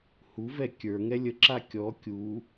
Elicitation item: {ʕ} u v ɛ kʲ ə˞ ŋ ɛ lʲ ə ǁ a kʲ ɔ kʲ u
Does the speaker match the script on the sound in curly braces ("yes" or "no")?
no